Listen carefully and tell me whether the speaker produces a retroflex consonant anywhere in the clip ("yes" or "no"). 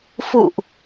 no